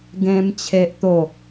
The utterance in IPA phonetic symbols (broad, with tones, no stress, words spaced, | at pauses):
ɡẽ˧m t͡ɕʰe˦ʔt̪o˥˧